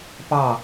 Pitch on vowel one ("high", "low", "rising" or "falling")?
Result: falling